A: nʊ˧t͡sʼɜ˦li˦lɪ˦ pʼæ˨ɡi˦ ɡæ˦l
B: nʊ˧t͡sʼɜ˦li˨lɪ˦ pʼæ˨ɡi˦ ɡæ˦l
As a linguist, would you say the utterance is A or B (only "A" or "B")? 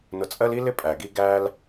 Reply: A